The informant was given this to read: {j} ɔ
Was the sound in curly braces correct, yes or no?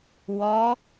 no